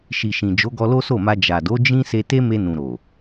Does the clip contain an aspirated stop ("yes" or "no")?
no